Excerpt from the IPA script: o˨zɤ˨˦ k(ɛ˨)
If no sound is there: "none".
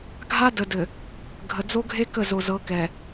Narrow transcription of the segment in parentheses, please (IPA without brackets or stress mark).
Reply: ɛ˨